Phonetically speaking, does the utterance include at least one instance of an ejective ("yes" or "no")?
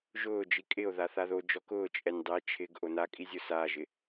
yes